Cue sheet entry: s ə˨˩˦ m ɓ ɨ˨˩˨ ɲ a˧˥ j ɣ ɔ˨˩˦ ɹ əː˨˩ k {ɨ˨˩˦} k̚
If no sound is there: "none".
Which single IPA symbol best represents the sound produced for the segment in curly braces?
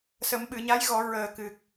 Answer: ɨ˨˩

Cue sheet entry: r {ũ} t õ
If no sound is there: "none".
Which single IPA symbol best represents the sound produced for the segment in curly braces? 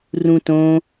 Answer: ũ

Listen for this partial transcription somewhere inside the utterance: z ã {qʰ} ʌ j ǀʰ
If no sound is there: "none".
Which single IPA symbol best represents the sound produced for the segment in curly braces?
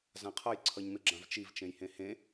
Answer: qʰ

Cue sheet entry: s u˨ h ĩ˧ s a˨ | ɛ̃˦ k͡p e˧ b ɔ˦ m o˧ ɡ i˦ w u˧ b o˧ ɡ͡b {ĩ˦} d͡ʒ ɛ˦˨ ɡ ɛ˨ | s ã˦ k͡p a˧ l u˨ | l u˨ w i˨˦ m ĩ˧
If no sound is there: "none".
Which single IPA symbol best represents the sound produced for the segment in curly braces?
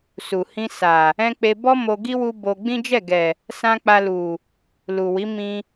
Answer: ĩ˦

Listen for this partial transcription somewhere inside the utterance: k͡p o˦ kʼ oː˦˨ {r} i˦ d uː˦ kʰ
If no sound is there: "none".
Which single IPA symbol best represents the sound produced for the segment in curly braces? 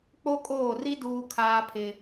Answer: r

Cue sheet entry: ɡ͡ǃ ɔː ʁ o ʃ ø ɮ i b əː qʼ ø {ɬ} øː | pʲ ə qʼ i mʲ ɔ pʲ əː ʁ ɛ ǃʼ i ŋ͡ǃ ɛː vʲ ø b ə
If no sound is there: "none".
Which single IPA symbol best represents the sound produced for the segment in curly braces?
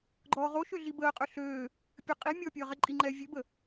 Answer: ɬ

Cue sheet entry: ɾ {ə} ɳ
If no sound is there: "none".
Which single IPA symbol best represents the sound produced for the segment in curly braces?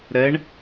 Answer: ɛ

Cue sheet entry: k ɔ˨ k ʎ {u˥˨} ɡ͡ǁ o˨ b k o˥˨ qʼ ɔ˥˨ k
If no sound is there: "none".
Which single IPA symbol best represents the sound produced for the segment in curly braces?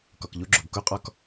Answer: u˧˥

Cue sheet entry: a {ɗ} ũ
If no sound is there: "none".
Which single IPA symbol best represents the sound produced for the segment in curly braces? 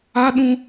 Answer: ɗ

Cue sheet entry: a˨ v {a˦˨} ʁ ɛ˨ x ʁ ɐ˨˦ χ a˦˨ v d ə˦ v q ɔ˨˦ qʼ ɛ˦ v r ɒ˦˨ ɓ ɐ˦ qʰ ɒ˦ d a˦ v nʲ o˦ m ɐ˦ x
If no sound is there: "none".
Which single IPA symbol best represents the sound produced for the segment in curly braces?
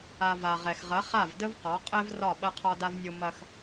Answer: a˨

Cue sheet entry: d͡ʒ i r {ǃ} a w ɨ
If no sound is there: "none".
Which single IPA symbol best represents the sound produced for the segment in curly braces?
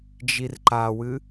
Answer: ǃ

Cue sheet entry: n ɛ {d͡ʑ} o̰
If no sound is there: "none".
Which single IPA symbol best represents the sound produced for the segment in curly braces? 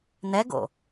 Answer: ɡ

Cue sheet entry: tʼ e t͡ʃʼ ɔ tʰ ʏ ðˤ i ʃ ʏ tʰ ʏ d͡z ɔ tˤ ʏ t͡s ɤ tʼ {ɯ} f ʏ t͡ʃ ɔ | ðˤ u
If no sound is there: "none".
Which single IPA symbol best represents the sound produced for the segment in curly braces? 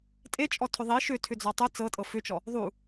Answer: ɤ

